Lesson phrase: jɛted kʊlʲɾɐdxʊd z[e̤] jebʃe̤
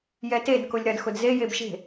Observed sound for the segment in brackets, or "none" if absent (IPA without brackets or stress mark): e